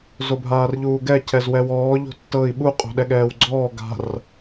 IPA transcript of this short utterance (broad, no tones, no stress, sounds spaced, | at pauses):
z o bʱ aː r ʎ uː ɡ ɛ cʰ ɛ z w ɛ w ɔː ʎ o̤ tː ɤ i̯ ɓ u qʼ o̤ ɗ ɛ ɠ ɛː w ɡ͡ǀ ɔː ɡ a̤ r